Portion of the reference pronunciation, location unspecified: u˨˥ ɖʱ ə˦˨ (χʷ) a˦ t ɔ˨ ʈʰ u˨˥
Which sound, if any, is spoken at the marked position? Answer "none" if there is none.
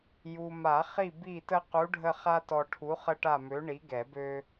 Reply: χ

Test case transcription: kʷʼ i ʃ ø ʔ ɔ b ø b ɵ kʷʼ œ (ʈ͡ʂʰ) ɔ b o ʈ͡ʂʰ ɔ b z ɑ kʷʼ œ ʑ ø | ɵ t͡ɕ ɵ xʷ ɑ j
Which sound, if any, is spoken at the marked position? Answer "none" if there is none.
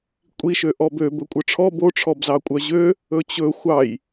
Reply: ʈ͡ʂʰ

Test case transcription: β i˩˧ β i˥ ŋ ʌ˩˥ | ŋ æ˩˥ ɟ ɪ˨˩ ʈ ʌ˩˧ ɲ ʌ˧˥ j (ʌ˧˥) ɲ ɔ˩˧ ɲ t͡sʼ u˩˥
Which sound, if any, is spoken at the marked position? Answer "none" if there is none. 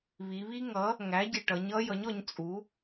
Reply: ʌ˩˥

